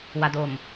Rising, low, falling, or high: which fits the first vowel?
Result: low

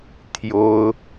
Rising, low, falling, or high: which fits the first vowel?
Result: high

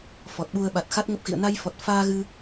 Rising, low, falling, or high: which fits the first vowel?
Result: low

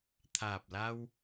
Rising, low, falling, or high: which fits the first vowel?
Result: low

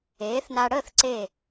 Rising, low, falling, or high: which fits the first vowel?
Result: rising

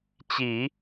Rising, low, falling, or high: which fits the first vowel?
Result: low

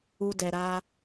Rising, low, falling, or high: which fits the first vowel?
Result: high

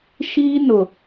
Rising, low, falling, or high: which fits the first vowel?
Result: high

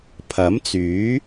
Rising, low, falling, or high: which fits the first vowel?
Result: rising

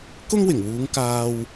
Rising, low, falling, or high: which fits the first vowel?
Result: high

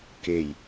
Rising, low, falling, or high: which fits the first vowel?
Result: low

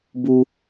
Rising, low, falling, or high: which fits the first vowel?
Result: high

